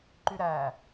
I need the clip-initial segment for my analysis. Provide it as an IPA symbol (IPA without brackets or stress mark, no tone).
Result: ǃ